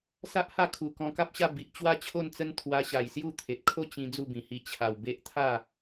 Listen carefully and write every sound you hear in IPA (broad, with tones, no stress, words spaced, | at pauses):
sa˦ʔha˥˧kʰu˨˩ kɔ̃˧ka˦p̚ɕa˥˧ bi˨ʔt͡ɕwa˥˧t͡ɕʰo˥˧nt͡sə˦n t̪ʰwa˧ɕa˨˩j sju˥˧ t̪ʰe˨t̚kʰo˥˧ t͡ɕĩ˧ d͡zu˥˧bĩ˨˩hi˧ t͡ɕʰa˨˩wbe˦ʔ t̪ʰa˥˧